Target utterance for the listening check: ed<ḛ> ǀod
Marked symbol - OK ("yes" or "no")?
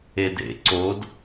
yes